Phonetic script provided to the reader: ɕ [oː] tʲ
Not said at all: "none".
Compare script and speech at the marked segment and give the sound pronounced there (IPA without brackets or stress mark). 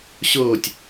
oː